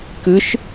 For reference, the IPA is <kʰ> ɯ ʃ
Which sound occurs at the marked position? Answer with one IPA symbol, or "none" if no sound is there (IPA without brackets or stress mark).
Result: k